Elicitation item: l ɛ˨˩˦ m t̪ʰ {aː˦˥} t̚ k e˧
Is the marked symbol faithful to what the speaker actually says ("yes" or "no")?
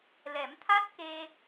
no